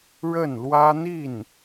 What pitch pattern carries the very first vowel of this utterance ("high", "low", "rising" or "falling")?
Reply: falling